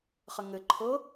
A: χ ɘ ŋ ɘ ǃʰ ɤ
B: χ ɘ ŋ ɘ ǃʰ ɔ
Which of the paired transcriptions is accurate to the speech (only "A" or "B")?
A